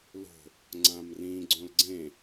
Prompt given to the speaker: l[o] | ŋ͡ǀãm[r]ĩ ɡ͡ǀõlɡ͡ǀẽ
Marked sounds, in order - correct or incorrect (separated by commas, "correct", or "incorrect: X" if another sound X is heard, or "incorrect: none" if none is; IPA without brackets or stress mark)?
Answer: incorrect: o̤, correct